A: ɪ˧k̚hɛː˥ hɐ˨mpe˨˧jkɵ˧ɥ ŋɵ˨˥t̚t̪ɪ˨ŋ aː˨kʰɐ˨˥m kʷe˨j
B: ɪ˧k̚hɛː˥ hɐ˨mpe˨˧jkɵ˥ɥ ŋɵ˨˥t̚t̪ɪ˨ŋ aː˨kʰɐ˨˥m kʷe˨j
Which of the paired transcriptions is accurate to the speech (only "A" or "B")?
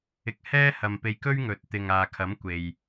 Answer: B